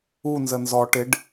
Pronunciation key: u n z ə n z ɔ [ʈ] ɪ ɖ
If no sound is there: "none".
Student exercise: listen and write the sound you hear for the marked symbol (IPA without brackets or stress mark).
ʈ